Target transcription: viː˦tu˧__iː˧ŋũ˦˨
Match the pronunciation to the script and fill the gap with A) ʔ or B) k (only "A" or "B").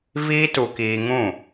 B